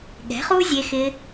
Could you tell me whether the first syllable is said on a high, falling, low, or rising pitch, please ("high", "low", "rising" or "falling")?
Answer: rising